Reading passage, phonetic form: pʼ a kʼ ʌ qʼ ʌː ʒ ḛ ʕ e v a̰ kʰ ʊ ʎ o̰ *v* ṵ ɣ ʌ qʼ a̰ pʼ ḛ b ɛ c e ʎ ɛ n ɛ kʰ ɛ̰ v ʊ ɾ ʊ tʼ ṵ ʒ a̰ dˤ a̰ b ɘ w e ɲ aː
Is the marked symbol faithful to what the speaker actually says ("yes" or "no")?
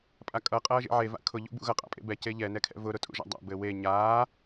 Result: no